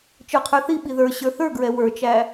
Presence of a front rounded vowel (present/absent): absent